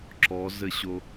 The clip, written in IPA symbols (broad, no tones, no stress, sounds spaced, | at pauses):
ǁ ɔ z ɘ ɕ o